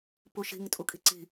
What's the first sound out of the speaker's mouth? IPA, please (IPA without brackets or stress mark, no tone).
p